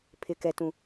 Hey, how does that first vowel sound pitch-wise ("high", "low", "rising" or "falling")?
low